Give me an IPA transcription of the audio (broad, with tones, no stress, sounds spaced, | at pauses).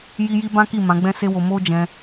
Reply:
j i˦ j i˦ b ã˦ k i˦˨ m ã˨˦ ɡ͡b ɛ̃˦ s e˦ w o˧ m o˦ d͡ʒ ɛ̃˧